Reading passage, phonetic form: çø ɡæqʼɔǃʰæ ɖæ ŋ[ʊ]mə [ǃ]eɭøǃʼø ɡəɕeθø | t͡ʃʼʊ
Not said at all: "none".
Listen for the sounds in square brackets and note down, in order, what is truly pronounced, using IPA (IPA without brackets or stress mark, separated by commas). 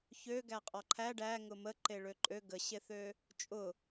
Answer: ʊ, ǃ